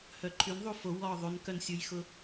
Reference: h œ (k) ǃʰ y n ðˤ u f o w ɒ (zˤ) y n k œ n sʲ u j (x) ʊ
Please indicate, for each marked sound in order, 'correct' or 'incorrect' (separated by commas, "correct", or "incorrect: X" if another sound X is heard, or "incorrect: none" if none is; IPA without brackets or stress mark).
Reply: incorrect: none, incorrect: ðˤ, correct